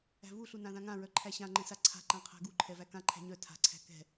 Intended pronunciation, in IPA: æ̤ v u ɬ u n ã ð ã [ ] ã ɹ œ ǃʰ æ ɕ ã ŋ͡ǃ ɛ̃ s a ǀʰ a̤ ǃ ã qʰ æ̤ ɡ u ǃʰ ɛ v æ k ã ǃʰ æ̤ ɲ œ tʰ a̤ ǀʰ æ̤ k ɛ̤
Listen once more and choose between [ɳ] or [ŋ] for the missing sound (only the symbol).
ŋ